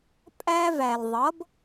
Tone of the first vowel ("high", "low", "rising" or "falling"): high